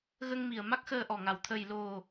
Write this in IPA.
ɣə˧ŋmi˨˩ə̯ ma˦˥k̚xəː˧ʔɔ˨˩ŋa˨˩w t̪ʰə˨˩jlo˨˩

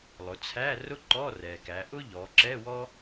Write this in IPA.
lˠʊ˩˧t͡sʰæ˧˥˧ rʊ˥ǃɔ˧˥˧ rɛ˩kæ˩˧ ʔʊ˥ ʎɔ˩˧ǁɛ˧˥˧wɔ˥

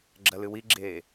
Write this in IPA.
ɡ͡ǁɐlɨwiɡ͡ǁeː

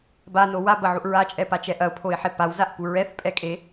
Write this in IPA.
bano wabɐʕuʔ ɹat͡ʃʼɛpat͡ʃɛ ʔɐʊ̯pʰoɪ̯ħe pawzaʔpu ɹɛθpʼɛkʼe

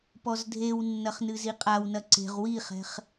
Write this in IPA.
pɔzdʱewnːɐχ nɨziqʼawnɐ ǀe̤ʁ wiχɛ̤χ

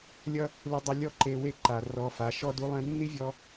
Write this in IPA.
lʲʌ˦ | lɨ˧ dˤʌ˧ lʲɔ˦ǃe˧we˦˨ ǃa˨ rɔ˧fa˨˦ ʃɔ˦du˦ lˠɛ̃˧nːi˦vʲɔ˧

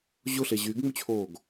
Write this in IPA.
ʑʊɬe ʑyɡŋ͡mʉt͡ɕʰoːɡ

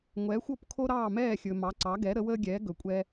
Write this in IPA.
ŋʷɛː˩˥xʷo˥˩p kʰo˥ɾɑː˥˩mɛː˥˩xʲɵ˩ mɑ˩˥ǀɑ˩˥ɡɛ˩˥ ɾə˩˥wəː˥ɡʲɛː˩˥ ɡɵ˩kʷʼɛ˧

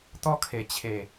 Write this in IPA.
t̪ɔ˦kʰe˨˩t͡ɕʰe˨˩

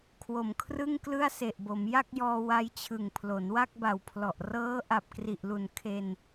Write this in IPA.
kʰwo˨˩mkʰrɯ˥˩ŋ klɯ˥˩a̯se˨˩ʔbo˩˦m ja˥˩k̚jɔː˧ wa˧jt͡ɕʰɯ˨˩ŋ pʰlo˩˦nwa˥˩k̚ba˨˩wpʰlɔ˨˩ʔ rɤː˦˥ ʔa˨˩p̚kri˨˩ʔlu˨˩n kʰe˧n

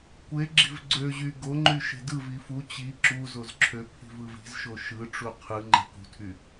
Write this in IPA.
kʷeɡ͡ǁi̤v ɡ͡ǀøʑy ɡoŋ͡ǃy ʃe̤dɯvi fu t͡ɕi ǁu zozǁʰøpʰi̤v ɯvi̤zʃo ʃɯʈ͡ʂu qʰɯ ŋ͡ǃe̤kṳtʰy

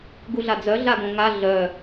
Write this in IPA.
ɡuɮad͡zœ ɮaɡõŋa ɮœ

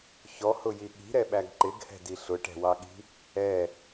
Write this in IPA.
çɔhʊji ɠi̤ɾɛɓæɡ ǃɪɡhɛ̤di ɬʊʈɛ̤wɑɠi̤ | ɛ

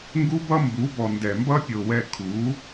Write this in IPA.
ŋɡu˦bʌ˦mbu˨˦bɔ˨ ndɛ˨mbʌ˦pʲo˨wɛ˧ kʰu˨˦

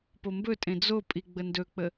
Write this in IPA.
pombɵtʼẽ d͡zo pʼiɡ͡bəndɵk͡pə

